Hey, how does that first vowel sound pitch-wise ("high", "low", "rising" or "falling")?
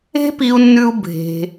high